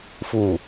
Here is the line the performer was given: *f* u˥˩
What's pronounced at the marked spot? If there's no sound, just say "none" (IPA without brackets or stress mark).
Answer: f